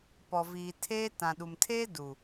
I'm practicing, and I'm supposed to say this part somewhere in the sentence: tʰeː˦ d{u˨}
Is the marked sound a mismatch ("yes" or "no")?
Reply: no